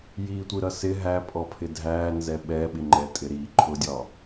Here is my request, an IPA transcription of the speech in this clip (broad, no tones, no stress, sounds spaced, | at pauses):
j i tʷ i ɾ ʌ s ɪ ɦ æ pʼ ɔ pʰ ɪ dʱ æ n z ɛ ɓ ɛ ɓ ɪ ŋ͡ǃ ɛ tʼ ɪ ɾ i ǃʰ ʊ dʲ ɒ